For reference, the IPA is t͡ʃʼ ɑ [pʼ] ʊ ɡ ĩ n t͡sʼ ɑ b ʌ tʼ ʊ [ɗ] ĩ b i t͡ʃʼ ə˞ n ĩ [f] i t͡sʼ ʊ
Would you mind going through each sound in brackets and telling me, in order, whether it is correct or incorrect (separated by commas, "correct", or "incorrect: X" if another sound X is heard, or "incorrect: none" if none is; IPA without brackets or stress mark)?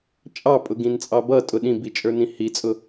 correct, correct, incorrect: h